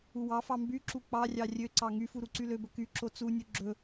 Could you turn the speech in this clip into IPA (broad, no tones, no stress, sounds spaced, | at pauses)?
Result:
u w ɑ f ɑ m b y ǁ u k͡p ɑ rʲ ɑ rʲ ø ǀ ɑ ŋ y f u ɾ u ǀ y l ø b ɵ k y ǁ o t͡s u nʲ u ɡ͡ǁ ɵ